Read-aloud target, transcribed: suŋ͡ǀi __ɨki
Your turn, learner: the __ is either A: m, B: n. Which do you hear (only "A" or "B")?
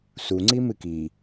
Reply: A